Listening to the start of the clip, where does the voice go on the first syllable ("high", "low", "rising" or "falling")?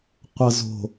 low